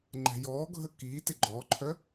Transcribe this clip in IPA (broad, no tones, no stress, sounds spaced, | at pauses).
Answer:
ŋ͡ǃ ɛ̤ j ɔː ɡʱ ə k iː t ɪ ɡ͡ǃ ɔ ǃʰ œ